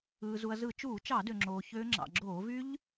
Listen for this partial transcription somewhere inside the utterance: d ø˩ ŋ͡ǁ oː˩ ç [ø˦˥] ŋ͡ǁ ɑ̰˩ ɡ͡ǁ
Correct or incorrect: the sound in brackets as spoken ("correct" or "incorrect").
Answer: correct